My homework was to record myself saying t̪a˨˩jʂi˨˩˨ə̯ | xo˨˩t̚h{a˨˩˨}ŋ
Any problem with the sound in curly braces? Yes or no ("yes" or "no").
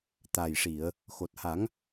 yes